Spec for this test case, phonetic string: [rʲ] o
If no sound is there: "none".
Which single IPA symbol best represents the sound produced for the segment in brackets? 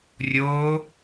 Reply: rʲ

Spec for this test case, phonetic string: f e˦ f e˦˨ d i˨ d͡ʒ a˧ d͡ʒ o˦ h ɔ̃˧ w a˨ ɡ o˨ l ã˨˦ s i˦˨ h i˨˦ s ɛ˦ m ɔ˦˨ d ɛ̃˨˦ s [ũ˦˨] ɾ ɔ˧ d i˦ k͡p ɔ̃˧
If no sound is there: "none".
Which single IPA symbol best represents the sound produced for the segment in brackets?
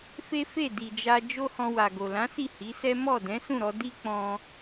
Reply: ũ˦˨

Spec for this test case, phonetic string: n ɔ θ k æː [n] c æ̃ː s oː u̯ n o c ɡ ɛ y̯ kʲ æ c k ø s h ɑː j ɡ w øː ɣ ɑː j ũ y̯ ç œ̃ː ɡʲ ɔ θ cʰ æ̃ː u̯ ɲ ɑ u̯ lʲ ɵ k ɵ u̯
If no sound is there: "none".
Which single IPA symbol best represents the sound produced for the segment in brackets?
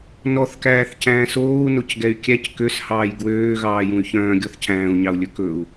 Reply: θ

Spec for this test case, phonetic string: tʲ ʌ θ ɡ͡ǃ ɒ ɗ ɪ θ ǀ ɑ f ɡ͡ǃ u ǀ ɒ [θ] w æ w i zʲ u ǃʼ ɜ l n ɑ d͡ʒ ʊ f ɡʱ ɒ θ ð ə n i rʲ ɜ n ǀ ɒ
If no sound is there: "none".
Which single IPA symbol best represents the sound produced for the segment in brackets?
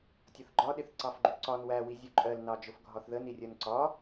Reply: n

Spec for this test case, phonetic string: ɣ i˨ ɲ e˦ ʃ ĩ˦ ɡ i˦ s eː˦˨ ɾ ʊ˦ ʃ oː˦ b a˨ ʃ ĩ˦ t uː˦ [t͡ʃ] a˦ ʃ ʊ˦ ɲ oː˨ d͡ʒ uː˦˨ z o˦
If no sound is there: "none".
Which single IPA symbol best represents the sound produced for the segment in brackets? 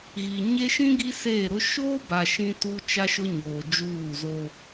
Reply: t͡ʃ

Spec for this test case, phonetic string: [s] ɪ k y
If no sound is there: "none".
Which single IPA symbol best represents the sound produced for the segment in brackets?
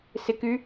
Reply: s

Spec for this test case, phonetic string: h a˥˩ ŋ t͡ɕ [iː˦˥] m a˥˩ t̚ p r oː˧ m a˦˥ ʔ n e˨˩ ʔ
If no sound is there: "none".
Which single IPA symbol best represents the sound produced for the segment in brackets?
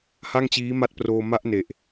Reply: iː˦˥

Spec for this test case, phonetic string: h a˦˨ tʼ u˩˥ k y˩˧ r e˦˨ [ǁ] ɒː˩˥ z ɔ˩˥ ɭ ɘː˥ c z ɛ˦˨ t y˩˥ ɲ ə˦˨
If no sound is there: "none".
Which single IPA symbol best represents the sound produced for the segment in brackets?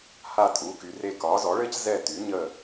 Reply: k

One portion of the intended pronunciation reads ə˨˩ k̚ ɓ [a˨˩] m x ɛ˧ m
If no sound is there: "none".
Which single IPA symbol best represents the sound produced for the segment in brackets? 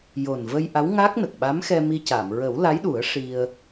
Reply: a˧˥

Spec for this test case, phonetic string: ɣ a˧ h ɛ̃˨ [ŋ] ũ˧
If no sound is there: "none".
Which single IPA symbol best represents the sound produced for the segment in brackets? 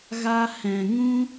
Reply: ŋ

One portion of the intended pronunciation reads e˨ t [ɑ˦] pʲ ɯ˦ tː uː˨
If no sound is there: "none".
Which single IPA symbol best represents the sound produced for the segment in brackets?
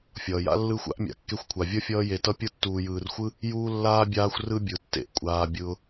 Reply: ʌ˦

